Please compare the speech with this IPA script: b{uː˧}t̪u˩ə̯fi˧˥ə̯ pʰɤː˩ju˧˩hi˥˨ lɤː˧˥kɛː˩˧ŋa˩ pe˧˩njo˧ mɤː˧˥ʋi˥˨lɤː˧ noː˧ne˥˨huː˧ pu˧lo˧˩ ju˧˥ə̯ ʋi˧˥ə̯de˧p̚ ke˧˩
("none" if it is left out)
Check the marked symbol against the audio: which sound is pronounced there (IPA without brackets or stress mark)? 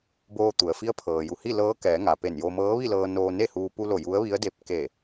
oː˧